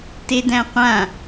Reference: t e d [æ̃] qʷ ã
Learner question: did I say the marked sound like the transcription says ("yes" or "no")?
yes